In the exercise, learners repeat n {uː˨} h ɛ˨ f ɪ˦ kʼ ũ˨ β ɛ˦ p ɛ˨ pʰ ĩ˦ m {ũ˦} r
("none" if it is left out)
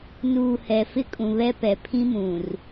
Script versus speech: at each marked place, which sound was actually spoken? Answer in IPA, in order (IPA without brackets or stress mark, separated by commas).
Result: uː˨, ũ˨